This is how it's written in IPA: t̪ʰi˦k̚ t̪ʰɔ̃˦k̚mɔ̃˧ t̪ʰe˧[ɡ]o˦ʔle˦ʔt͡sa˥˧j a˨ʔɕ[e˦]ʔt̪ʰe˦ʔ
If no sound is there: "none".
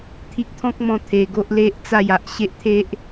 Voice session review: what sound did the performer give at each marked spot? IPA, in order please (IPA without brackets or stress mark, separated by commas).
ɡ, e˦